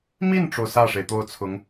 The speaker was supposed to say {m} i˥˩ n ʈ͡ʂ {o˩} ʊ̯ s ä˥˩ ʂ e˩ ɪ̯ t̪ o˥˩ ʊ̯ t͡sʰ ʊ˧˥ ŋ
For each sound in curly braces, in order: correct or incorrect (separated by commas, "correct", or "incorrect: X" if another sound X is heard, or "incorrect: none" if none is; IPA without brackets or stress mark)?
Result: correct, correct